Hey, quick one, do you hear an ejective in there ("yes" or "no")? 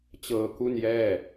no